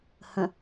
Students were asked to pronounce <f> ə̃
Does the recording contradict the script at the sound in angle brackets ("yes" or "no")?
yes